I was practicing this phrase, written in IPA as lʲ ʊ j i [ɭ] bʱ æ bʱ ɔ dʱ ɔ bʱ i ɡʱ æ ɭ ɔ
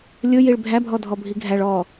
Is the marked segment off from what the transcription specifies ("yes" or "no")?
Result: no